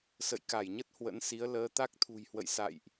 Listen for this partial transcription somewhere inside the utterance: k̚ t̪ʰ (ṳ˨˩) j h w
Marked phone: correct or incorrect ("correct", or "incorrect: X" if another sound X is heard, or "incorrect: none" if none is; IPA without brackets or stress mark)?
correct